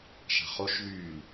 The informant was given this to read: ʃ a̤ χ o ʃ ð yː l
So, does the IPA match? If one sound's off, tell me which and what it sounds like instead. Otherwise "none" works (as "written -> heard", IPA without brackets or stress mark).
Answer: none